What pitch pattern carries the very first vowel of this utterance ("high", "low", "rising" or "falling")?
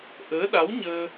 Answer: rising